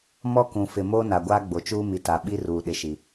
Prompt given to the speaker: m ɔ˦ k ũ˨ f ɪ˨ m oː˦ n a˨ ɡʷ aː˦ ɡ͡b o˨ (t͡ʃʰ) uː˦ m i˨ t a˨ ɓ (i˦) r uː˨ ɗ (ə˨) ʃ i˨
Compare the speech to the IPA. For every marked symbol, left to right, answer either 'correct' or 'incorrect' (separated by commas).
incorrect, correct, incorrect